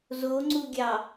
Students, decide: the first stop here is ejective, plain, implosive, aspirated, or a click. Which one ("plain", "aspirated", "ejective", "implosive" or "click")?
click